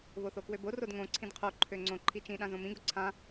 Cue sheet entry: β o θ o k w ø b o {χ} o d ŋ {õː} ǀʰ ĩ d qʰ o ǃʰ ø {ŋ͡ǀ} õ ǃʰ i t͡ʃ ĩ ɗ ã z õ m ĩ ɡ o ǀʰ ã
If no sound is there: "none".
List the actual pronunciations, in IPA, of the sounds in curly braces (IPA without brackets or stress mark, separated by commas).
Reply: r, õ, ŋ͡ǀ